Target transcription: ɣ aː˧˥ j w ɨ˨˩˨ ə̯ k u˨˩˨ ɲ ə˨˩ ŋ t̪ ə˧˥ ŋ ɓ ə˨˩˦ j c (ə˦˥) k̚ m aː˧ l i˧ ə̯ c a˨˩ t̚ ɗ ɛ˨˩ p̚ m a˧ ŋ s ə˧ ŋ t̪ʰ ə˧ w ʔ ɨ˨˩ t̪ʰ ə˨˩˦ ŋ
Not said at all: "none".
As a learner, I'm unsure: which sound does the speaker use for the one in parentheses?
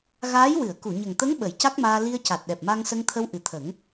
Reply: a˦˥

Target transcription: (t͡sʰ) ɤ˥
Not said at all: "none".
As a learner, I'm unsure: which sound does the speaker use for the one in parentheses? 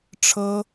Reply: ʈ͡ʂʰ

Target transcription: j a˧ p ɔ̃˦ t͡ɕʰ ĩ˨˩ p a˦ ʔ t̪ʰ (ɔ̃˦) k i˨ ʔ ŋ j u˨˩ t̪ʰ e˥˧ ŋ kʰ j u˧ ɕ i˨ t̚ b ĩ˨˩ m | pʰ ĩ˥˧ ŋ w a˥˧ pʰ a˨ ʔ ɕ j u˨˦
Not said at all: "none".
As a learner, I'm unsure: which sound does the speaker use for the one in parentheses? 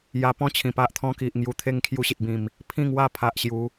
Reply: ɔ̃˦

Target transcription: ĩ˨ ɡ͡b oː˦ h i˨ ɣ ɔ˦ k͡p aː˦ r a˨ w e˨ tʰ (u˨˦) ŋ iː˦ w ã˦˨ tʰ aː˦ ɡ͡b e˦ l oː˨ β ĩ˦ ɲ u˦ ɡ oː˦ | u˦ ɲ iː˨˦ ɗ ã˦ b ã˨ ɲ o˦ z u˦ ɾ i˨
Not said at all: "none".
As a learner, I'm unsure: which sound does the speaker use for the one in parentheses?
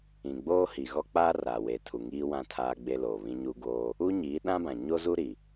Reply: u˨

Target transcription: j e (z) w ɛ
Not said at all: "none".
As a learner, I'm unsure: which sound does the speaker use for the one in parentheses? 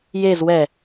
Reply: z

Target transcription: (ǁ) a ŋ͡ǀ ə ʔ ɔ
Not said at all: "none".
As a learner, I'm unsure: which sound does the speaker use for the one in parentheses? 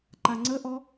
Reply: ǃ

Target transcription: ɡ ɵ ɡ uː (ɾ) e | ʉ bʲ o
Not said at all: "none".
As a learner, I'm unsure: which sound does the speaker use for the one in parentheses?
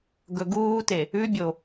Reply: t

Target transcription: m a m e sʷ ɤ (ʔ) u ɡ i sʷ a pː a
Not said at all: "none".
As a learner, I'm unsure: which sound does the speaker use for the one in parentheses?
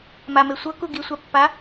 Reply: k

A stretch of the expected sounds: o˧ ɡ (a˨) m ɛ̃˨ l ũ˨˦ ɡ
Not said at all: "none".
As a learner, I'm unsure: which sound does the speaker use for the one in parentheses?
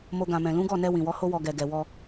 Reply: ã˨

